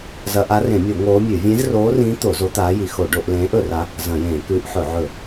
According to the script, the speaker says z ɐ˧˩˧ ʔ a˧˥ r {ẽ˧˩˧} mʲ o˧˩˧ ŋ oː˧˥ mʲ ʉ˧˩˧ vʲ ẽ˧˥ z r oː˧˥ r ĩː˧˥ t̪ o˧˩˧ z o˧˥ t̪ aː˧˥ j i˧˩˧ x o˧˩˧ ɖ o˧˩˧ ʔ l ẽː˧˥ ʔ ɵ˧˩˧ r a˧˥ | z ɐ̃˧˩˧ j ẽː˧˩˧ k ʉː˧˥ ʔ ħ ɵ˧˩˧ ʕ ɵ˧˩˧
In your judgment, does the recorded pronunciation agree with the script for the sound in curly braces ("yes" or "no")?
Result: yes